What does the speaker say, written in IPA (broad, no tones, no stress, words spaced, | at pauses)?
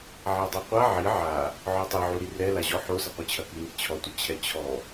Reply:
ʕadˤuqʷa ʕi ʕa | ʕɔtˤiʕu ɾirɛ laʑɔ ħosɐqʷɨt͡ɕʰɐ kɨŋit͡ɕʰɔtʷɐ t͡ɕʰɛt͡ɕʰɔ